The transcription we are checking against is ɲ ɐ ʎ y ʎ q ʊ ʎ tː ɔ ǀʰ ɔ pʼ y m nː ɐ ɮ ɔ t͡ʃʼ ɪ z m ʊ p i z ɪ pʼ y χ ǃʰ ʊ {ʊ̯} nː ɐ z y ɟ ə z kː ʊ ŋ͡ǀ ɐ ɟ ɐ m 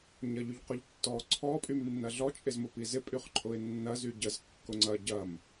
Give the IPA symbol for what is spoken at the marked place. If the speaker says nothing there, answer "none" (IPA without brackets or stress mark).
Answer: ɪ̯